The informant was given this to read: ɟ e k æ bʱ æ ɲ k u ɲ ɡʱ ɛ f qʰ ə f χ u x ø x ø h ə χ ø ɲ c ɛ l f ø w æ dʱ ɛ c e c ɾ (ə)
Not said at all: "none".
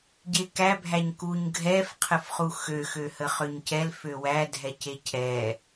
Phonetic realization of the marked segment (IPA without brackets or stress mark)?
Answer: ɛ